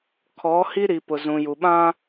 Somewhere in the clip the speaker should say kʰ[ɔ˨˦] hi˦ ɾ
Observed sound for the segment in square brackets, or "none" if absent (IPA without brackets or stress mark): ɔ˨˦